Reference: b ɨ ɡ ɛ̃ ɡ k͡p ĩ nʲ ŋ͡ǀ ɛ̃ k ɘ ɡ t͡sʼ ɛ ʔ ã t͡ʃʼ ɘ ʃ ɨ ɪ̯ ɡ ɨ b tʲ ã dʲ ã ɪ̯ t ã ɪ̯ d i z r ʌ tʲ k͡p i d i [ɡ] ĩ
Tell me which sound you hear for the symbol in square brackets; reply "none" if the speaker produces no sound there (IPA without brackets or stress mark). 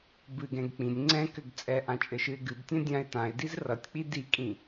kʼ